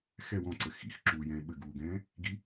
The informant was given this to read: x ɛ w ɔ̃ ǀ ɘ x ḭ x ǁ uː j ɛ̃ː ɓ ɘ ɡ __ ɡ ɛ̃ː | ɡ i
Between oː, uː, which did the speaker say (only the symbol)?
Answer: uː